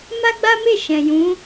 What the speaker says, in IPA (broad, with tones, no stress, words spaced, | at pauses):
ma˦ɡ͡ba˦ me˦˨ʃɛ̃˨jũ˨˦